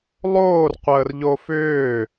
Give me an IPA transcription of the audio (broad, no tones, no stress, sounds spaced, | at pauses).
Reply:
lˠ oː r qʷ əː r ʎ o f ʏː